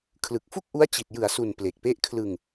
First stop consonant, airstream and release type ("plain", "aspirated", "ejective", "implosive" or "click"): aspirated